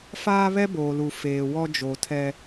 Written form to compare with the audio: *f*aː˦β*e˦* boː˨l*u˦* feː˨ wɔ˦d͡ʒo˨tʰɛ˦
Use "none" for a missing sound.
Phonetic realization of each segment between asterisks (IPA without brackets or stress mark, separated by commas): f, ɛ˦, u˨